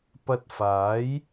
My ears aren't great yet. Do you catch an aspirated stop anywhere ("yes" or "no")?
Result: no